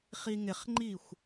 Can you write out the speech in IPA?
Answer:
χ i ŋ ɪ χ ŋ͡ǃ i xʷ

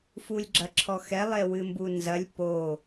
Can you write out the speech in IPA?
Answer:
f u lʲ ɡ͡ǁ ɐ ǁʰ ɔ x ɛ lˠ e w ɨ m b u n z ɐ lʲ p o

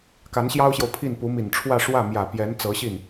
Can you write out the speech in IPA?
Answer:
k a˧˥ n ɕ j ɑ˥ ʊ̯ ɕ j o˨ ʊ̯ pʰ i˥˩ n p u˧˥ m i˨˩ n ʈ͡ʂʰ w ä˥˧ ʂ w ä˥˩ m j ä˨˩ p j ɛ˧˥ n t͡s ɤ˧˥ ɕ i˥˩ n

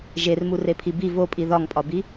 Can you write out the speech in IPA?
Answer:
ʒ e r m u r e pʰ i b i v o pʼ i ð ɒ ŋ pʼ ɒ b i

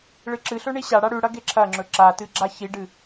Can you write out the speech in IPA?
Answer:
ɭ ɨ ǁ ɨ ɬ ɵ ɳ i ɕ a ɽ a ɽ ʉ ɽ ɐ ɡ e ǁʰ ɐ ŋ͡ǁ ɵ ǁ a t ɨ ɡ͡ǁ a ç i ɖ ɨ

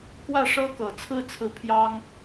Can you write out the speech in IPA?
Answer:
k w ä˥˩ ʂ ɤ˥ k ɤ˨˩ t͡sʰ ɹ̩˥˧ t͡sʰ ɹ̩˥˩ pʰ j ɑ˥ ŋ

